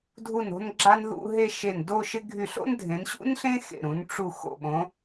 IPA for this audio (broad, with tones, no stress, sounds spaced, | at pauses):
dʱ u˧˩ n o̤˧ n ɡ͡ǁ a˧ n ð ṵ˧ ɦ e˥˧ ʃ e˧˩ n d o˥˧ ʃ ɪ˥ ɡʱ y˧˩ ɬ o̰˥ n dʱ ẽ˩˧ n ɕ ṵ˥ n ɬ ẽ˥ x ḛ˧˩ ɾ ũ˩˧ n ʈ͡ʂ u˧˩ x o̰˧˩ ɓ õ˩˧